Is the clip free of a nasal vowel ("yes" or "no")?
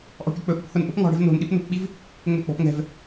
yes